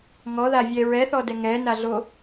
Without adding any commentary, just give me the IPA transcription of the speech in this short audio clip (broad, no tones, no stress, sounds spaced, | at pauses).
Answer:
ŋ ɔ ð a vʲ ɛ ɹ ɛ θ ɔ d ɛ ŋ ɛ n a ɮ o